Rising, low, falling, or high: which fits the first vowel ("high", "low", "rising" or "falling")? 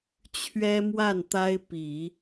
high